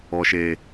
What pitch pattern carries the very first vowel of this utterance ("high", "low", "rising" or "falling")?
low